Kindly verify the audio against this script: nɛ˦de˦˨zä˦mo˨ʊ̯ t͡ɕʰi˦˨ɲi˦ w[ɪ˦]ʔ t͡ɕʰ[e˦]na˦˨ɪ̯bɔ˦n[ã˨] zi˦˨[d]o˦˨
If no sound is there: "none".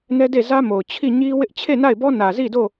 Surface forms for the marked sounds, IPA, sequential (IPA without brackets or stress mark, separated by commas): ɪ˦, e˦˨, ä˨, d